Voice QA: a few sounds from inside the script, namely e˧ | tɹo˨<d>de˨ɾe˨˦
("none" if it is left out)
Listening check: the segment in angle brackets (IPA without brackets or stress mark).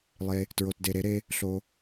t